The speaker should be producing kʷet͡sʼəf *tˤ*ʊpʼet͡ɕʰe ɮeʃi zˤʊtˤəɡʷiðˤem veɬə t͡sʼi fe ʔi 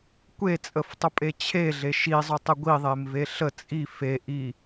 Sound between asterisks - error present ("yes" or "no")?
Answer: no